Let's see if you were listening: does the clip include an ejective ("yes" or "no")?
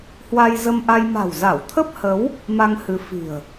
no